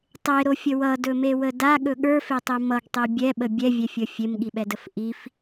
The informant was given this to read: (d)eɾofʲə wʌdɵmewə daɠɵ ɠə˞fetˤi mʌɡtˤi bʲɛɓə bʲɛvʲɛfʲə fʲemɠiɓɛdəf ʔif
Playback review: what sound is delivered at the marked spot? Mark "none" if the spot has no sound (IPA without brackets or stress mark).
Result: tˤ